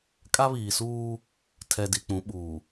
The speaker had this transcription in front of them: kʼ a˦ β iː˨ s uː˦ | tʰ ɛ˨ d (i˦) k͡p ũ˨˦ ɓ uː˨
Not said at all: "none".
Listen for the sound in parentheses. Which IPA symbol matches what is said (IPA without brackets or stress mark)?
i˨